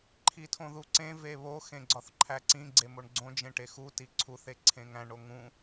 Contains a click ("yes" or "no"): yes